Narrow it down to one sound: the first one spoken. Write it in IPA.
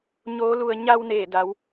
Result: ɲ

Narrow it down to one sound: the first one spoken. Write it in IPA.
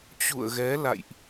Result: t͡ɕ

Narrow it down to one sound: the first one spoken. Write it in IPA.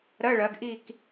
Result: ɾ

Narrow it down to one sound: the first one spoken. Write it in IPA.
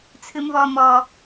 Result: t͡sʰ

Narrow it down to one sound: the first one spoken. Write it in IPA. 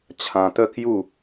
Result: t͡ɕʰ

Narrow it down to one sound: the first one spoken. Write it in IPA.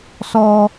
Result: s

